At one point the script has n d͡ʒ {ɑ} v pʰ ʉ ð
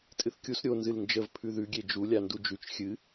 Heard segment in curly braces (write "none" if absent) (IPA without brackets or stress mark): ə